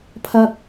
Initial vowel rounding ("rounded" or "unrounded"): unrounded